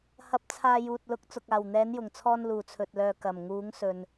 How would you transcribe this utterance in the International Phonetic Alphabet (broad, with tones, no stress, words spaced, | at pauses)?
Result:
hɐ˨˥p̚t͡sʰaː˨ juː˨t̚lʊ˨˥k̚ t͡sʊ˨k̚aː˨˩w n̪ɛː˨˧njʊ˨˩ŋt͡sʰɔː˧n luː˨˩t͡sʰɵ˨t̚lœː˨ kɐ˨˩m ŋuː˨˧ŋsɵ˨n